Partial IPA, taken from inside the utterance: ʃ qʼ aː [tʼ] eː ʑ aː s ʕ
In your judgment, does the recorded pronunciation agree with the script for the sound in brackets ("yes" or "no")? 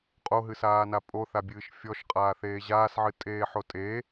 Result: no